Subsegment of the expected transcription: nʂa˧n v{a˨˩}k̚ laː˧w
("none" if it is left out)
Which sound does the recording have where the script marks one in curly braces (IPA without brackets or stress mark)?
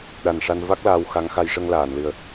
a˦˥